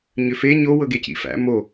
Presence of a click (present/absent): absent